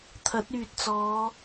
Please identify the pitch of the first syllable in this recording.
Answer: rising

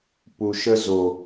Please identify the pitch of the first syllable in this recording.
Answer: low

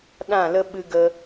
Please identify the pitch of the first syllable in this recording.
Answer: falling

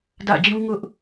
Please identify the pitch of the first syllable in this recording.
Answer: falling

